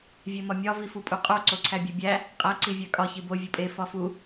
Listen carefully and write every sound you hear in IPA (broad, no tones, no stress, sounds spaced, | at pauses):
vʲ e m ɒ mʲ ɒ v i f u pʼ u qʼ o ǀ o ǀʰ æ bʲ e bʲ æ | qʼ æ ǀ i vʲ æ kʼ ɒ ç i b o vʲ u pʼ e f ɒ f u